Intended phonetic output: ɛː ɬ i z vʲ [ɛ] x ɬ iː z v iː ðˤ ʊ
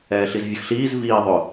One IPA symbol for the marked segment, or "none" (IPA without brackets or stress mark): ə